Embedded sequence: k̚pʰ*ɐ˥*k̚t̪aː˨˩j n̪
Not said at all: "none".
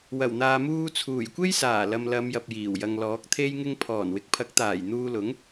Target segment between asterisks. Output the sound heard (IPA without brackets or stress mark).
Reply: ɐ˨˥